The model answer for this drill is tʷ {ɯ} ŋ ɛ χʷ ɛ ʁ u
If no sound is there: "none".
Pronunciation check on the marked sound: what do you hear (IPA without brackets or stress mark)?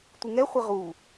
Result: ɯ